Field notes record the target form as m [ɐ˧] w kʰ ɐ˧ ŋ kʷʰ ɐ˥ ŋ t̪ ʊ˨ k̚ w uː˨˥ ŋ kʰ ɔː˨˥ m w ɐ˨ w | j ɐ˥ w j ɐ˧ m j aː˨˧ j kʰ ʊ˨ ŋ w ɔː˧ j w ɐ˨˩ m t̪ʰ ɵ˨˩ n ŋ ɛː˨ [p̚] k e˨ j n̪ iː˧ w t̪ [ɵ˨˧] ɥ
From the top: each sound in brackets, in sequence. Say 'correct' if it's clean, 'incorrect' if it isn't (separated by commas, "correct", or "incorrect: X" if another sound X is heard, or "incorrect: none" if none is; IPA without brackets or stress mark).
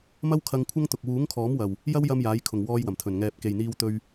incorrect: ɐ˥, correct, incorrect: ɵ˧